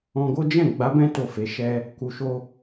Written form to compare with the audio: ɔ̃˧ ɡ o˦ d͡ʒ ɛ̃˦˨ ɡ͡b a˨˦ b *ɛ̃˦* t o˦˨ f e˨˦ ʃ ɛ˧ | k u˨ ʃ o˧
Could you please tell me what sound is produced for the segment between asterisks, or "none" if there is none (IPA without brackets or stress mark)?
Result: ɛ̃˦